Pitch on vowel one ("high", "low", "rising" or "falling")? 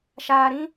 low